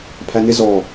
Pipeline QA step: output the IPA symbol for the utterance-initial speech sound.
pʰ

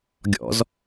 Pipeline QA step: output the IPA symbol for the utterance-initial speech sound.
ɡʲ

